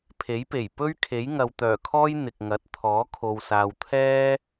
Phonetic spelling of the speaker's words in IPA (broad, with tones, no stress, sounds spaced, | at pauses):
pʰ e˨˥ j p e˨˩ j p ɵ˥ ɥ kʰ e˨˥ j ŋ ɐ˨ w t̪ œː˨˩ kʰ ɔː˥ j n̪ ɪ˨ k̚ ŋ ɐ˨˥ t̚ t̪ʰ ɔː˨˥ kʰ o˨ w s aː˨ w t̪ʰ ɛː˥